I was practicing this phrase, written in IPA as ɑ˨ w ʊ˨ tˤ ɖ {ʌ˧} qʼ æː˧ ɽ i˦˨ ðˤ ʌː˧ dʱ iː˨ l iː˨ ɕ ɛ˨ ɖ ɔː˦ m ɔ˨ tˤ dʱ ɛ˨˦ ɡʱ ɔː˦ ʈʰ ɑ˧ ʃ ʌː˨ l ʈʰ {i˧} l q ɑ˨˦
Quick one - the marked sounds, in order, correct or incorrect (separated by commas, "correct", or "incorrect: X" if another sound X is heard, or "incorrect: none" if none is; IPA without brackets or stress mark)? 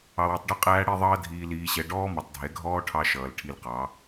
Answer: correct, correct